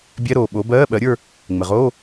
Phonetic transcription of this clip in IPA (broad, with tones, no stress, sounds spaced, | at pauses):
bʲ ɛ˧˥˧ ɾ oː˧˩ ɓ o˨˥ b ɜː˧˥˧ ɓ ɜ˨˥ ɾʲ ə˞˥˧ | ŋ͡m ɘ˩ ʁ oː˧˥˧